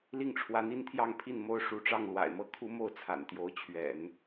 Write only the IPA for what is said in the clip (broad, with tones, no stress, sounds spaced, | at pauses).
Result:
l i˥˩ ŋ ʈ͡ʂʰ w ä˧˥ n̪ i˥ n t̪ʰ j ɑ˥˧ ŋ pʰ i˥˩ n m o˥ ʊ̯ ʂ u˧˥ ʈ͡ʂ ɑ˥˩ ŋ l w a̰˨˩ ɪ̯ m ɤ˥˩ kʰ u˥ m o˥˩ ʊ̯ t͡sʰ a̰˨˩ n t̪ j o˧˥ ʊ̯ t͡ɕʰ ɥ ɛ̰˨˩˦ n